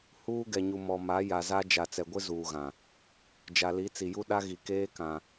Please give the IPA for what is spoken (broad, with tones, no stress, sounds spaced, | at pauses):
h uː˦ ɡ ɛ˨ ɲ u˨ m ɔ˨ m a˨˦ j a˨ z a˦ d͡ʒ a˨ t͡s ɛ˨ ɡʷ ɪ˦ z uː˨ ɣ ã˨ | d͡ʒ a˨ l i˨˦ t͡s i˨ j u˦ ɗ a˦ ɣ i˨ k eː˦ k ã˨